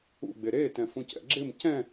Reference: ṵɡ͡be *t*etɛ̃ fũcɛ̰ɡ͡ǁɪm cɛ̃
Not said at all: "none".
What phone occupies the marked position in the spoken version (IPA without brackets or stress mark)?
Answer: ɾ